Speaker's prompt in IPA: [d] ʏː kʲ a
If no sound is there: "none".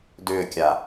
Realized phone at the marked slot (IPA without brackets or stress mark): d